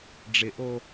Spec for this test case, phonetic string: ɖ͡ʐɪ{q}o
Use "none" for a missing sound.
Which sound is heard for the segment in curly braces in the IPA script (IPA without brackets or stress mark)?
ʔ